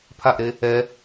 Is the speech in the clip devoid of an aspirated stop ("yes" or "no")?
no